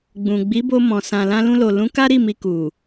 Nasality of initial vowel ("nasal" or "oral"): nasal